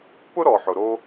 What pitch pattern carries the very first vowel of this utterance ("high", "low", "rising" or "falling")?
high